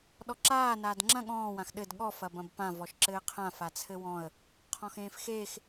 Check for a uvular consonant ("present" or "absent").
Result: present